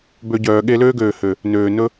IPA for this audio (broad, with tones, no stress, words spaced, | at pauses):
bø˧ ɟœː˨ ɠe˧løː˦ɡøː˨ hø˨ | nøː˨ nɵ˦